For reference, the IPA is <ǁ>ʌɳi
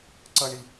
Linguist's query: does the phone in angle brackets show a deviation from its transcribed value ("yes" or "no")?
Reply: yes